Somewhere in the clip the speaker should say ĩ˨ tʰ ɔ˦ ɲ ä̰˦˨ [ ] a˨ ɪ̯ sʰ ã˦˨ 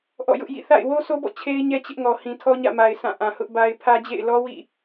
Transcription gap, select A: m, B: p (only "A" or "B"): A